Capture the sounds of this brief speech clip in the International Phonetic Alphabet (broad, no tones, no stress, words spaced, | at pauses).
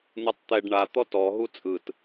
n̪ɯtˤt̪ɛɖ ɳa t̪ɔtɔ ɦut͡sʼɯt